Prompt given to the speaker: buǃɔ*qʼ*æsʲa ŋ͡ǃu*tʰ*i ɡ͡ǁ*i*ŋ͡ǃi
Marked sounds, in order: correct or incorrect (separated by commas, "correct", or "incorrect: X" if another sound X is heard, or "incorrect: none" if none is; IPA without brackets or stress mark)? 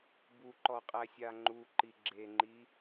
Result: correct, incorrect: ǃ, incorrect: e